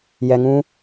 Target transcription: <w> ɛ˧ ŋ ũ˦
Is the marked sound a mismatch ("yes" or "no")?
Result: yes